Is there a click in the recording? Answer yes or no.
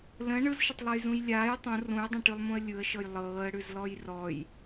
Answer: no